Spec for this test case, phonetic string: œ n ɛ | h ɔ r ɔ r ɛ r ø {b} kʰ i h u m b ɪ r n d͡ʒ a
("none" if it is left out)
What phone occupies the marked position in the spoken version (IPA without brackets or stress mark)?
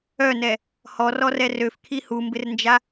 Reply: f